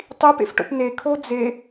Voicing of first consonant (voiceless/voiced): voiceless